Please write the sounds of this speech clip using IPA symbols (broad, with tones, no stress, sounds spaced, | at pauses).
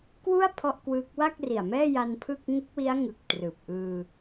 k w u˥˩ a̯ pʰ ɔ˥˩ ʔ k w ɯː˦˥ k̚ w a˥˩ k̚ r i˨˩ a̯ m ɛː˥˩ j a˧ n pʰ ɯ˥˩ k̚ ŋ u˦˥ k̚ w i˦˥ a̯ ŋ ɯ˨˩ k̚ t r ɯː˨˩ p̚ ʔ ɯː˧